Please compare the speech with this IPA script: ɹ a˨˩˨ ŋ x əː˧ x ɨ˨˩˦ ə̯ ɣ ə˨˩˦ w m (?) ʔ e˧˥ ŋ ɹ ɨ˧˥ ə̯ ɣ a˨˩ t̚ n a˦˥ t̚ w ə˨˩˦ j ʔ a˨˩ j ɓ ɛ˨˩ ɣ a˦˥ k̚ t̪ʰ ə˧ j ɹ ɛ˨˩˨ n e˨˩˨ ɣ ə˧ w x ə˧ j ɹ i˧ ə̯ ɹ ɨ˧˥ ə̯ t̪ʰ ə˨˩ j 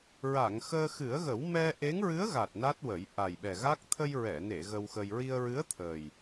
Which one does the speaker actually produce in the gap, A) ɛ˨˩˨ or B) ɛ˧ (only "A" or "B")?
B